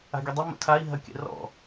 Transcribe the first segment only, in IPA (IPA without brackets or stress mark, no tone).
a̤